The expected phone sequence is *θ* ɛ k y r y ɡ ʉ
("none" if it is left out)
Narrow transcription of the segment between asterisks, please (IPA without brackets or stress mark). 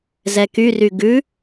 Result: z